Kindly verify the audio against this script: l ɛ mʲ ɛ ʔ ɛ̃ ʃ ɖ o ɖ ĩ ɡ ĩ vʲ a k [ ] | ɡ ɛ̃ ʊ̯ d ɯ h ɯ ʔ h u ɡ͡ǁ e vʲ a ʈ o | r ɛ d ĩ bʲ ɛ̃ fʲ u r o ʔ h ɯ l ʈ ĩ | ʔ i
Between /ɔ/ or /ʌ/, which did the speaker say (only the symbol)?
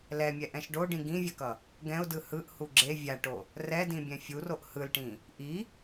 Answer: ʌ